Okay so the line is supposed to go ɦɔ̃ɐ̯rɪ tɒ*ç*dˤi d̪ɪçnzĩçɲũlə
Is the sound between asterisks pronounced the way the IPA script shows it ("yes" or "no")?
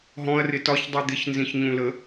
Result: yes